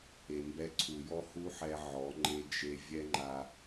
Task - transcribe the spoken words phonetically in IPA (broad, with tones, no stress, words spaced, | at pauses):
e˨mbɛ˧ǀʰu˨jɔ˦ hu˦ħɛ˧ ʕɔ˨˦ ŋ͡ǃe˧ d͡ʒe˧ vʲɛ˦ŋ͡ǃa˧